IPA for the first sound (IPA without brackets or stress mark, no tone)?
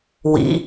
w